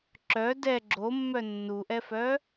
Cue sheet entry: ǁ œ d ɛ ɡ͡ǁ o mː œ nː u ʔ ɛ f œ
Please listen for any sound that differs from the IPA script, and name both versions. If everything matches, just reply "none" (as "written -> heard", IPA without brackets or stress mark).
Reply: none